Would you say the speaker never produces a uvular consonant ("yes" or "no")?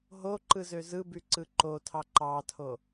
yes